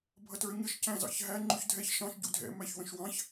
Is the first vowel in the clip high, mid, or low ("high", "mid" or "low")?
mid